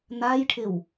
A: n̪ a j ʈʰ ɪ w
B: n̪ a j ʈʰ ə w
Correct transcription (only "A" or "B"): A